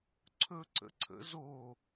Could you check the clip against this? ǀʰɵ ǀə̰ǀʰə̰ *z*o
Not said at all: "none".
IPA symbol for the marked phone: z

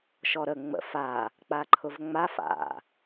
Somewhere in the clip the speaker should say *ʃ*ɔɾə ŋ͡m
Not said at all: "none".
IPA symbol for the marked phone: ʃ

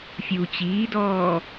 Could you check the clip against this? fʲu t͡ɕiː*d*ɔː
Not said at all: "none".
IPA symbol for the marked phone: d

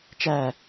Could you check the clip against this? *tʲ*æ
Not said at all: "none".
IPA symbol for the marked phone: t͡ʃ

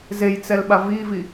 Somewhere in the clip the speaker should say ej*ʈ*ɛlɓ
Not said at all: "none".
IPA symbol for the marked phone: t͡s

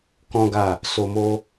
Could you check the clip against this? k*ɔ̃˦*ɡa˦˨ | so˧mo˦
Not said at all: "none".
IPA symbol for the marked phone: ɔ̃˦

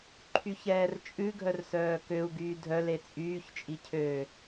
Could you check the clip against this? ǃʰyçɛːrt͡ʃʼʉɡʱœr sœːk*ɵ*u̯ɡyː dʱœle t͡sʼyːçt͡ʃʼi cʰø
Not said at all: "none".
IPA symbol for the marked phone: ø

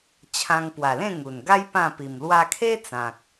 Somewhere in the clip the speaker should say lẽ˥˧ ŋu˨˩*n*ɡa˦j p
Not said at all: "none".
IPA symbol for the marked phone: n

